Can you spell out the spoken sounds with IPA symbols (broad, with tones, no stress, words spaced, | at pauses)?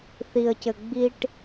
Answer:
θi˨ə̯cɘ˨ ɡ͡bi˧ʈ